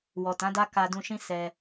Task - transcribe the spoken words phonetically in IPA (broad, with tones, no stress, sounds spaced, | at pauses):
w ɔ˨ t ã˨˦ d a˦ k a˧ d ũ˧ ʃ ĩ˦ s ɛ˧